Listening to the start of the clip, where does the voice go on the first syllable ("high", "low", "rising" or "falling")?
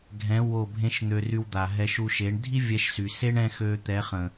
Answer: rising